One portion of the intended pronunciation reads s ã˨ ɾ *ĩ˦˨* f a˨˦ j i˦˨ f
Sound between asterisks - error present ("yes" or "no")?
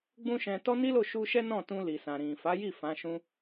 yes